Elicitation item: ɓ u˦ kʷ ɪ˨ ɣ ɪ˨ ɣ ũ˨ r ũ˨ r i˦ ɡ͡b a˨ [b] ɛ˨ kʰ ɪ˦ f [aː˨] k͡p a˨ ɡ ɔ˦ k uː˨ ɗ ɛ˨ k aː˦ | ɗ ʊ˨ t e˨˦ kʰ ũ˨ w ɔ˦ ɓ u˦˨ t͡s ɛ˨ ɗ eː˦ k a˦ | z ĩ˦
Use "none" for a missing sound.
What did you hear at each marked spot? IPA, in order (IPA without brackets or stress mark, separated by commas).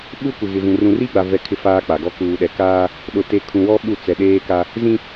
v, aː˦